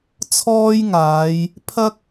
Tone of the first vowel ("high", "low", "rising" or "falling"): high